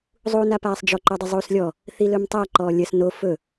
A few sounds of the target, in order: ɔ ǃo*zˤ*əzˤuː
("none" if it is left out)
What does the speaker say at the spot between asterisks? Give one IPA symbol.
dˤ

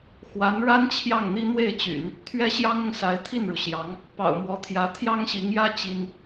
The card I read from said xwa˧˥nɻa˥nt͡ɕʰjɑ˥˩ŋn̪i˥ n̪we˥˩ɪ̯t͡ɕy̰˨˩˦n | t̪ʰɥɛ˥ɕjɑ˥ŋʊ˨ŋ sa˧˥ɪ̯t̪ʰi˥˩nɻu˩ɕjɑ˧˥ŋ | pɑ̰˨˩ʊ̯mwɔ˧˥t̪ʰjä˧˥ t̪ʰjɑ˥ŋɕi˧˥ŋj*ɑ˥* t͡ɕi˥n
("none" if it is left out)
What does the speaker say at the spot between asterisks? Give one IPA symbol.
ä˥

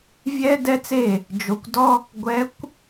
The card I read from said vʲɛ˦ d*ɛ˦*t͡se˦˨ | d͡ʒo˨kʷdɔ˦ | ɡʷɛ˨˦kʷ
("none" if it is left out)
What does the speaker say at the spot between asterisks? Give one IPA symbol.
ɛ˦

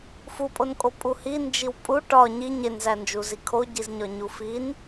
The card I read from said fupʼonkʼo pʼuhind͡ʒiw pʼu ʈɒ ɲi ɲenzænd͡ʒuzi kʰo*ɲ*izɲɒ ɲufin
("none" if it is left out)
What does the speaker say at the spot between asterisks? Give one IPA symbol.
ɟ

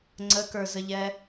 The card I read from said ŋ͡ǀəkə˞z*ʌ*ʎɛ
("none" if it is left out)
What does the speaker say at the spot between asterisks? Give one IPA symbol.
ə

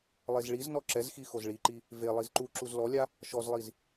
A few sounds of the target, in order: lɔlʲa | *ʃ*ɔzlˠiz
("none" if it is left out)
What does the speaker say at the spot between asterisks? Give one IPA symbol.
ʃ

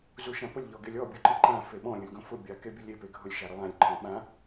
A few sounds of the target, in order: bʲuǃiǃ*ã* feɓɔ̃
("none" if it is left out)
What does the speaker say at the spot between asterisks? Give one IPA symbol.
ã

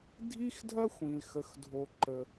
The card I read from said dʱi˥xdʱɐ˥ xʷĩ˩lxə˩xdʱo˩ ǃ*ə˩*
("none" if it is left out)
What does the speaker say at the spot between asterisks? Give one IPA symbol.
ə˩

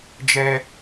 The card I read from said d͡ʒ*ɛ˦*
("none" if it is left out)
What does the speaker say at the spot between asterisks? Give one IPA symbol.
ɛ˦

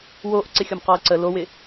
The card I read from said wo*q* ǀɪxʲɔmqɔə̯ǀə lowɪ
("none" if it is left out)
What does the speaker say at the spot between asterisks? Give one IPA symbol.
ʔ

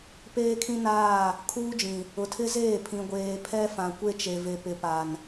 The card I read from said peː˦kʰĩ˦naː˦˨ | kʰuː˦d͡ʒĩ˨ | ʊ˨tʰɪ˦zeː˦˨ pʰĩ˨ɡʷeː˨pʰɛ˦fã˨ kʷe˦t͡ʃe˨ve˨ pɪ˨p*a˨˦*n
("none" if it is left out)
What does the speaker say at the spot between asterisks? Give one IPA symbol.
a˨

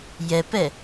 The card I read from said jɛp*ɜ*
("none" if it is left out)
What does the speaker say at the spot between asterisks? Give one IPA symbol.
ɛ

